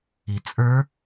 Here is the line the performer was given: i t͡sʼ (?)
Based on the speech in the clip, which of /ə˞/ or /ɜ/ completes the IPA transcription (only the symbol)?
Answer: ə˞